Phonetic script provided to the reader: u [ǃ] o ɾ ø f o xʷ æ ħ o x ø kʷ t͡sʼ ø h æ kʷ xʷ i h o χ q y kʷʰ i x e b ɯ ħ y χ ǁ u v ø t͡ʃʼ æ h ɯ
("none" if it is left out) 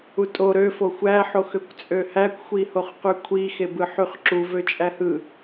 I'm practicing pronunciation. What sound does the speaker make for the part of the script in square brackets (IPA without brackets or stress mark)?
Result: tʼ